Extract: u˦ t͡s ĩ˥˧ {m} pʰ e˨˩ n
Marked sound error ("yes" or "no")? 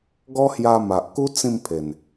no